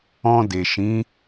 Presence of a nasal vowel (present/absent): present